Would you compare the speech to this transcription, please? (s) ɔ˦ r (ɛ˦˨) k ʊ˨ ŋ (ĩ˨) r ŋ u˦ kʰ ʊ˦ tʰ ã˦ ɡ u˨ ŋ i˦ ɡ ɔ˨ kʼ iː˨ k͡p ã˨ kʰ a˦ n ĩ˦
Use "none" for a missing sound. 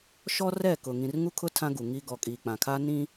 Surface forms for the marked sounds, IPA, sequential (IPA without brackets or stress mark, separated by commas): ʃ, ɛ˦˨, ĩ˨